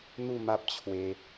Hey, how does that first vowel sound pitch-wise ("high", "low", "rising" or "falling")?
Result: falling